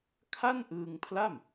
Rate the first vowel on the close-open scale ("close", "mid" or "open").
open